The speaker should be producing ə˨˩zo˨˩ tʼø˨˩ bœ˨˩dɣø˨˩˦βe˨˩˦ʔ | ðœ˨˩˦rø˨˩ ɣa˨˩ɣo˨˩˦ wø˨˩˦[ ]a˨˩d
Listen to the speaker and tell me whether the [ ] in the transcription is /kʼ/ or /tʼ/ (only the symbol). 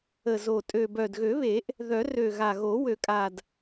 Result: kʼ